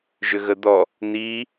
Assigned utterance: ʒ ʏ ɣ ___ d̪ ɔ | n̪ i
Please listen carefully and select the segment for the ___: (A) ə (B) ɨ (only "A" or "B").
A